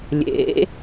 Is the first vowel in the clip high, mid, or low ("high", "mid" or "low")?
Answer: mid